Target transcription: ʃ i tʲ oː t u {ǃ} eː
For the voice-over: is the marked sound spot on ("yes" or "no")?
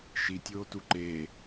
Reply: yes